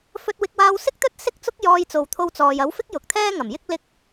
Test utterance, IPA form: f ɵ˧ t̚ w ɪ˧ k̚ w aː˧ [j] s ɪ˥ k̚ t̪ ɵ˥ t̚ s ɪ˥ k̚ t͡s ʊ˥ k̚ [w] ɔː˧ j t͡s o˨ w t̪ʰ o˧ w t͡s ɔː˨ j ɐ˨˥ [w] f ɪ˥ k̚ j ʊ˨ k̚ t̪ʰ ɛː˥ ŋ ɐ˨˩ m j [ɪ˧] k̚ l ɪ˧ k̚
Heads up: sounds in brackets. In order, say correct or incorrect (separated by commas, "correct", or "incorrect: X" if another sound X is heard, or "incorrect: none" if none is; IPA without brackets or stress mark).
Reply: incorrect: w, incorrect: j, correct, incorrect: ɪ˥